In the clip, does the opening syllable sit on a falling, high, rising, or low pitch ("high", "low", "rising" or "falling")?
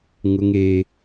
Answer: high